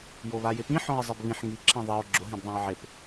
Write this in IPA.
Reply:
joβajɪpĩ ħɔ̃e̯zˤebβĩħ ŋi ǁʰɛ̃ðˤeo̯ ɡ͡ǁʊ ɦɛ̃bðˤãe̯ʕep

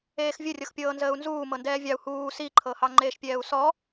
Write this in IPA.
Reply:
eːxvʲərʲɤxpʲɤː nzəːu̯nzuː mɤndɛːvʲɑu̯ huː siǃʰɤhɑ ŋ͡ǃeːʃpʲɛːu̯sɔ

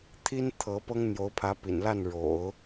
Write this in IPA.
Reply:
t̪ʰi˥n t̪ʰɤ˧˥ pɤ˥ŋn̪jo˧˥ʊ̯pʰä˧˥ pḭ˨˩nla˥˩n ɻo̰˨˩˦ʊ̯

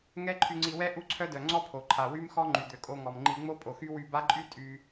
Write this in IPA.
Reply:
ŋɛ˦ǃʰy˧ŋ͡ǀi˧wɛ˦ ʔu˦ǀʰœ˦dœ˨ ŋ͡ǀɔ˦pʰo˨ǃʰa˨ wy˦mxɔ˦ ŋ͡ǃy˨d̪ø˨kʼo˧ ŋɔ˨mŋ͡ǃi˧ ŋ͡mo˦pʼo˨xy˦ wy˧ba˦ǃʼy˦ tʼy˧

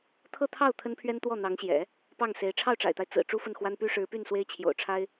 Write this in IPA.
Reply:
t̪ʰɤ˥˧t̪ʰɑ˥˩ʊ̯ t̪ʰə˥npʰɥɛ˥n t̪wɔ˥˩n̪ɑ˧˥ŋɕjɛ̰˨˩˦ | pɑ˥˩ŋse˧˥ɪ̯ ʈ͡ʂʰɑ˥˩ʊ̯ʈ͡ʂa̰˨˩ɪ̯t̪a˦ɪ̯ t͡sɹ̩˨˩ ʈ͡ʂu˥fə˥˩nxwa˥n py˥ʂɻ̩˧˥py˥˩n swe˥ɪ̯t͡ɕʰjo̰˨˩ʊ̯ʈ͡ʂʰa˥ɪ̯

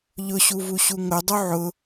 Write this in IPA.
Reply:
ʎʊɕuvuɕu ŋʊdˤu ʕʊ

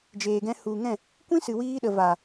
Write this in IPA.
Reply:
d͡ʒeː˨ɡɛ̃˧ hu˨ŋɛ̃˦˨ | kʷĩ˦sɨ˨wiː˧ɗə˨ va˨

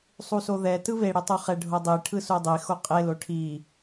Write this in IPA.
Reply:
sˤusoðɛ tɯβe ɽitˤuχɛ ɖʱodˤi ʈʰɯsudˤi xoqʼe loʈʰi

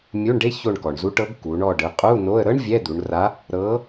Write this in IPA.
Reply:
mʲu˧˥˧ɳɖe˥ ço˦˨ɳkɔ˩ɳzu˧˥ʈɤ˧˥ɡ ku˩˧ɳɔ˦˨ ɖɯ˩˧qʼu˧˥˧no˧˥˧ə̯ ɾɤ˥ɳ vʲɛ˧˥˧d̪u˩˧ɳra˧˥ | ɾɤ˧˥

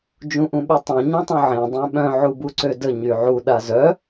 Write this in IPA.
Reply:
d͡ʒũʔũɓytˤœ̃ ɲũtˤũʕẽ dˤẽɓœ̃ ʕubuǀødə ɲyʕu ɗazœ

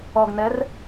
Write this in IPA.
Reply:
ɔɡnɛr

